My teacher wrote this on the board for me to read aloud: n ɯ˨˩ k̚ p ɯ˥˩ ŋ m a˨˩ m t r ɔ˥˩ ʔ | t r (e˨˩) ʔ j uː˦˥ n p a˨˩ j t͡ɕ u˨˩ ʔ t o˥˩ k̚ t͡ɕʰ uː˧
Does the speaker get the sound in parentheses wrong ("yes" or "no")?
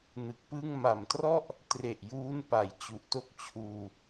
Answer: no